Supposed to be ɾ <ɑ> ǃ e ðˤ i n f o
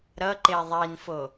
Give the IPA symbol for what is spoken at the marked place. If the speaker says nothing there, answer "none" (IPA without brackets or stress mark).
ʌ